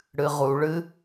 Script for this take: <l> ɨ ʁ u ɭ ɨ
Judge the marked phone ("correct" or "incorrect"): incorrect